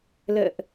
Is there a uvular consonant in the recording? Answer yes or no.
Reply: no